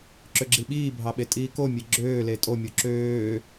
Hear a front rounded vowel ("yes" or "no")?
yes